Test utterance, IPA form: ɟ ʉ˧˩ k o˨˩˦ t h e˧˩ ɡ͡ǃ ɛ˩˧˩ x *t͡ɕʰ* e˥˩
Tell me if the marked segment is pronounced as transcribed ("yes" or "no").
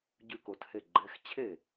yes